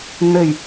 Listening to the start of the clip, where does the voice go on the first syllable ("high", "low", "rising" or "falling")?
low